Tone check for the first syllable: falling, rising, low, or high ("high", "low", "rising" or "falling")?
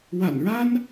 low